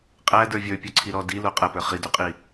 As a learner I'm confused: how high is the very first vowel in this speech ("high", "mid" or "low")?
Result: low